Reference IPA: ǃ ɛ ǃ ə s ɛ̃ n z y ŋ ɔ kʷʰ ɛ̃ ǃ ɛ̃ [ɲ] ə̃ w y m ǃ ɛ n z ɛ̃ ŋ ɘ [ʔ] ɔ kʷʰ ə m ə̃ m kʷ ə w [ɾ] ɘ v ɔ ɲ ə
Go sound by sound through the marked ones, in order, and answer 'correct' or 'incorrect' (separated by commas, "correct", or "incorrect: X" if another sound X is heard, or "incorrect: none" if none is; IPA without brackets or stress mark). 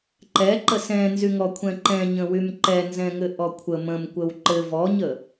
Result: correct, correct, incorrect: ǃ